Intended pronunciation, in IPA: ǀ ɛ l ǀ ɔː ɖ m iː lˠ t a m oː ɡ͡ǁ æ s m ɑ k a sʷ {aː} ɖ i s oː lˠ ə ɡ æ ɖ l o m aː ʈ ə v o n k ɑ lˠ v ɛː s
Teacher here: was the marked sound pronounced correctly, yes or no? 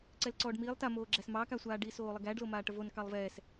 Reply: yes